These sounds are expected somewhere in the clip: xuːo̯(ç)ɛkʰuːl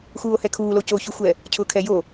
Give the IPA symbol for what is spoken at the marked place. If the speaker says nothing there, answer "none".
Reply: h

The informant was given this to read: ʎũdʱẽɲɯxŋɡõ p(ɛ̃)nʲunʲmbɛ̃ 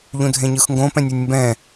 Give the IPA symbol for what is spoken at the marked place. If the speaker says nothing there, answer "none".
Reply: ɛ̃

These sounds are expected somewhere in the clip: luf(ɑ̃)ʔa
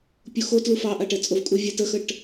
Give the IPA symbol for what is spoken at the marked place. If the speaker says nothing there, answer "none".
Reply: ɑ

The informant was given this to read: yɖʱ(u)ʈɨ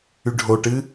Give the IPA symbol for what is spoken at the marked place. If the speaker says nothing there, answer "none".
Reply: o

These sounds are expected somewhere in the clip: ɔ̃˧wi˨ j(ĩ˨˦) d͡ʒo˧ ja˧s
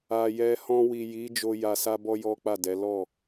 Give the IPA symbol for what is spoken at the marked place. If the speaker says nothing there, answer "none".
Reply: i˨˦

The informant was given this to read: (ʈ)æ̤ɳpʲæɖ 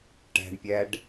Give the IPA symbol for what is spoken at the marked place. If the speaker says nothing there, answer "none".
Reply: ʈ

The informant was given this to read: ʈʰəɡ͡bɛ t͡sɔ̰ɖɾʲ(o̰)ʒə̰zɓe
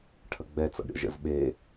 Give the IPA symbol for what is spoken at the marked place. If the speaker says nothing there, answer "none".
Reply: ɔ̰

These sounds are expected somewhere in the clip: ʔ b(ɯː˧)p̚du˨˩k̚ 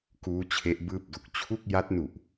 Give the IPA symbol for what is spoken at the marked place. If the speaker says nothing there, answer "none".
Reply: ɯː˥˩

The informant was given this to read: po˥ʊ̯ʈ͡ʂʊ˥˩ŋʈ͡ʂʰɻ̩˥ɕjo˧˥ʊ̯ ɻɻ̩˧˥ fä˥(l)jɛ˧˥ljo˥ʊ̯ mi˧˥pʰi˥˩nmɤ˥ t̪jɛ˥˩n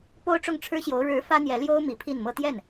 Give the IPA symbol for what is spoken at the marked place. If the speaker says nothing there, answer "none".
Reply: n̪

